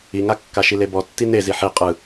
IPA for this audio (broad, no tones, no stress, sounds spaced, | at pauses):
i ŋ a kː a ʃ i l e b ɔ tː i n e z i ħ i qʼ ɯ